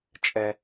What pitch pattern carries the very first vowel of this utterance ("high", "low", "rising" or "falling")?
low